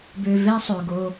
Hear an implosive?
no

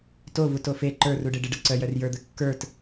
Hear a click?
yes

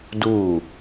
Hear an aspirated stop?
no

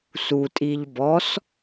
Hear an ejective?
yes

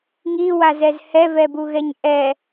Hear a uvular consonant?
no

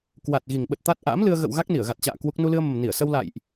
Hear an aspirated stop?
no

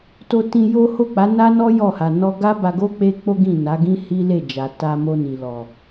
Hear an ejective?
no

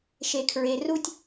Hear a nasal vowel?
no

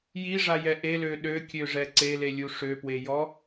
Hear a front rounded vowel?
yes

